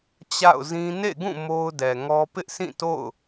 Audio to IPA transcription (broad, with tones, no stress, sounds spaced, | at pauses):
t͡ɕ a̰˦˨ ʊ̯ z ĩ˦ n ḛ˦˨ ɡ ũ˦˨ m o˦ ʊ̯ d ɛ˨ ŋ ɔ˦ p ɪ˦ ʔ sʰ ĩ˦˨ t o̰˦˨ ʊ̯